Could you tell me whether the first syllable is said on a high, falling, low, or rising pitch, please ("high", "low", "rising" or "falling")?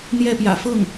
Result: falling